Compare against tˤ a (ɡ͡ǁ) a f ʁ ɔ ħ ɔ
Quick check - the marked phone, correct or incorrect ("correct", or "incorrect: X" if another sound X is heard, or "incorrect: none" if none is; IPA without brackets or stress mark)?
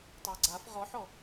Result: incorrect: ɡ͡ǀ